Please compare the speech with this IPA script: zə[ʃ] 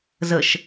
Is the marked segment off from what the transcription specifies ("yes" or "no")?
no